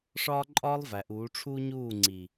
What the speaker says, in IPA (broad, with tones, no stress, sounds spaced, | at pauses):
ʂ ɒː˦ ǃʼ ɒː˦ lˠ v æ˨ ʔ uː˨˦ ʈ͡ʂʰ uː˦ ɲ uː˦˨ ŋ͡ǀ i˨